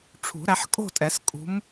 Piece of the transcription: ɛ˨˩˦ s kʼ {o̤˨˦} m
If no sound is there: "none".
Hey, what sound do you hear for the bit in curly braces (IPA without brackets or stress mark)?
ṳ˨˦